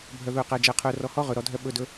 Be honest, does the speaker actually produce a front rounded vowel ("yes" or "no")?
yes